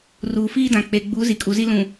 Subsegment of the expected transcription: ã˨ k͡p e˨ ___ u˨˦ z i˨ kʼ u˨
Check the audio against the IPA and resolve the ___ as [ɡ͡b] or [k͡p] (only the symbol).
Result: ɡ͡b